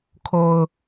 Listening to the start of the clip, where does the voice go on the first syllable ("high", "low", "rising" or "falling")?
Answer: low